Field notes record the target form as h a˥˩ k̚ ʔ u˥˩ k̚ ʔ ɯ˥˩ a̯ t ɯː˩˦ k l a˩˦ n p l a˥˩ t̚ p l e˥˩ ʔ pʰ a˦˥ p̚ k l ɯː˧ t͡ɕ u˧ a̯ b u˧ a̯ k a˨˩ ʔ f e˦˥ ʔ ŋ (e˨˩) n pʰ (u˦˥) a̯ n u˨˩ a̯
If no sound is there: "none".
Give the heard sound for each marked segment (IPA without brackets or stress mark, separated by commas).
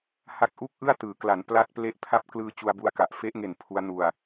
e˨˩, u˦˥